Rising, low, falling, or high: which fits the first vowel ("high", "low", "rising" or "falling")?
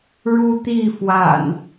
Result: high